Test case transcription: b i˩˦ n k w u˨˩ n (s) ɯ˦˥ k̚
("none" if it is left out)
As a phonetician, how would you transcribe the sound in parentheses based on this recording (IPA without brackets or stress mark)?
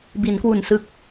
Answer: s